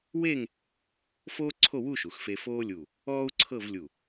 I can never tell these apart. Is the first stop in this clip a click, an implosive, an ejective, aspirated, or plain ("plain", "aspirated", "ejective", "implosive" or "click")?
click